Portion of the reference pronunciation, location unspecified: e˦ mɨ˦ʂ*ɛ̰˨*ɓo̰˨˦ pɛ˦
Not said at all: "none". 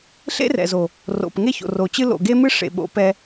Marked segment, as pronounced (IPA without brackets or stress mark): ḛ˨